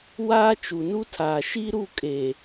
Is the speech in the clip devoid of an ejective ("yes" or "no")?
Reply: no